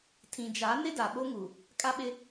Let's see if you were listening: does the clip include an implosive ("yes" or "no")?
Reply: yes